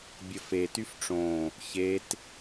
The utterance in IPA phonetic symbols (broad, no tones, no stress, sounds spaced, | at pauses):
bʲ ə f e t y f ʈ͡ʂ õ | ç e t